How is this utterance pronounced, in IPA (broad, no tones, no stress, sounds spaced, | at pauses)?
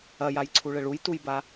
ɐ j a j ǀʰ u ɭ ɘ ɭ u j t u j b a